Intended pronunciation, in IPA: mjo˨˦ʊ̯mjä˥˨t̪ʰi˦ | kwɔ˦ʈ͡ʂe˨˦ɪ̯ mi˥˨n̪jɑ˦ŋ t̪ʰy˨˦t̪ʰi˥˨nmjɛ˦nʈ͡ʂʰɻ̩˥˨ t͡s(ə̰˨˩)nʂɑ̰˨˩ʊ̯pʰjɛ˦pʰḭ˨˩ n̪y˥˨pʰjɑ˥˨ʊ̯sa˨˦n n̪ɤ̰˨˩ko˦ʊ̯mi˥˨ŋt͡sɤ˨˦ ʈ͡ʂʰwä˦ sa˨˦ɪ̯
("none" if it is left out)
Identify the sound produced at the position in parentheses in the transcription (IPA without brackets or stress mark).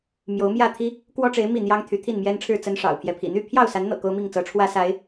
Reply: ə˦